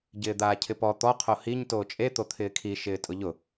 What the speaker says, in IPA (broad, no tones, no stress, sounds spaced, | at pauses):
ɟ ɪː d̪ aː cʰ ɪ p ɔ t̪ ɔ qʰ o h i ɲ t oː t͡ʃʼ e t̪ o t̪ʰ ɪː kʰ i ʃ ɪː tʼ ʊ ʎ ʊ